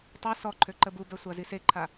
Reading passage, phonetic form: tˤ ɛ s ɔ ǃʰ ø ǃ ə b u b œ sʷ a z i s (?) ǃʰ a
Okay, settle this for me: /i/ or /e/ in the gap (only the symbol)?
e